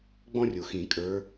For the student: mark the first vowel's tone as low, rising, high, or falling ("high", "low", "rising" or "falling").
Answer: high